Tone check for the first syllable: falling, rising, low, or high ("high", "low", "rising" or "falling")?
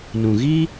low